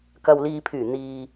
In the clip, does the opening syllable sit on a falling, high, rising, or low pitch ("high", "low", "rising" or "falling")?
low